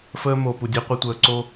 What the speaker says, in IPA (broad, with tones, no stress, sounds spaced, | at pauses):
f əː˦ m o˨ p u˨ dʲ e˦ qʷ ɨ˨ tʷ əː˨ ǀ o˦